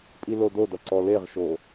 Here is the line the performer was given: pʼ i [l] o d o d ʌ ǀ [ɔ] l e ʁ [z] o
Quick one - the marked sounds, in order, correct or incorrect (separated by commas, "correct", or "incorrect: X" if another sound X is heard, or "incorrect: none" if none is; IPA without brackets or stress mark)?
correct, correct, incorrect: ʃ